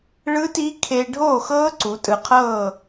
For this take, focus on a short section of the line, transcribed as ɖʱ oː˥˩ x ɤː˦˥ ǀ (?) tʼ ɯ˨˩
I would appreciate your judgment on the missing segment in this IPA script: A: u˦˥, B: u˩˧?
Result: B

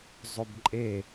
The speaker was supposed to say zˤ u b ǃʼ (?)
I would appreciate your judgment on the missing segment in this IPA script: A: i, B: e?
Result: B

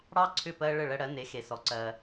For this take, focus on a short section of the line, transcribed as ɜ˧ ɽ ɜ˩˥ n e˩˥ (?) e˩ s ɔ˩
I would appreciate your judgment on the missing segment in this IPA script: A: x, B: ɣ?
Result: A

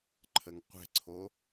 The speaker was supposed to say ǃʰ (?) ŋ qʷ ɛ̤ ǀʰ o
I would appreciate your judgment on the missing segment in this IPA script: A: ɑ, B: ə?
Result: B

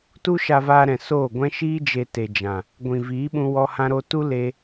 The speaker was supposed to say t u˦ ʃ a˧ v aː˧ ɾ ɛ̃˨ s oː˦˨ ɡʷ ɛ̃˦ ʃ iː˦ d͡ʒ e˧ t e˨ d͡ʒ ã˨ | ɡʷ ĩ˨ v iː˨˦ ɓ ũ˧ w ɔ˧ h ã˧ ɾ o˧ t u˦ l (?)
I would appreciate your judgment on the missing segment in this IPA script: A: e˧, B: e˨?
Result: A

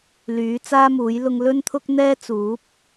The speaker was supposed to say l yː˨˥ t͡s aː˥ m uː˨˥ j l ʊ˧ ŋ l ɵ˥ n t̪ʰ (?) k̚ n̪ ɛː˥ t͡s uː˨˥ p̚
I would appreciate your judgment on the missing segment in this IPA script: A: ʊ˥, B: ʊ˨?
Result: A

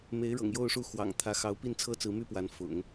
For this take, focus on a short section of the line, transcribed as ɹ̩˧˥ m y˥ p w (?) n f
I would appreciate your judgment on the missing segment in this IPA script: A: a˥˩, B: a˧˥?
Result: B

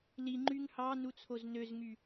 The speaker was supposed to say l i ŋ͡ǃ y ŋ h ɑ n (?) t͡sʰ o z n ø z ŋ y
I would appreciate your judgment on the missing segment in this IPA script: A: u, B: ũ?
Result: A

